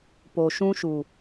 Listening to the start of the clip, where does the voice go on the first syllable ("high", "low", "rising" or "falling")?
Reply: low